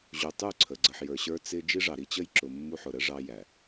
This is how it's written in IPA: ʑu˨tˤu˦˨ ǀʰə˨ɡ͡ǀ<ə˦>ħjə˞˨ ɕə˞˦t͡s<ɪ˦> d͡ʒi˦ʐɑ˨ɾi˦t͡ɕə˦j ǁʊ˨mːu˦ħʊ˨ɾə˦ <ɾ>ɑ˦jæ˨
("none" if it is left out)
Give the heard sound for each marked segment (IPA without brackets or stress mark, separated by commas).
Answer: ə˨, ɪ˦, ʐ